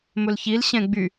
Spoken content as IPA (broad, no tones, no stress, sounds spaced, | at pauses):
m ɵ l ç i l ɕ ɛ̃ ɡ͡b y